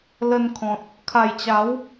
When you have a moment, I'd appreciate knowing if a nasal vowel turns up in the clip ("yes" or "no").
yes